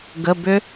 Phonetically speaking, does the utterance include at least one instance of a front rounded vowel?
yes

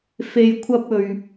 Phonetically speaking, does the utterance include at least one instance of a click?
no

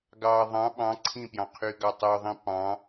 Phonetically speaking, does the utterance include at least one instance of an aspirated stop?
yes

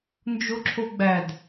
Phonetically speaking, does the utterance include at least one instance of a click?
yes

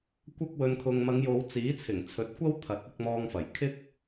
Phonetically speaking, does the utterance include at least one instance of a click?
no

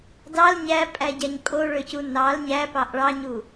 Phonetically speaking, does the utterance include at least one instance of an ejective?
yes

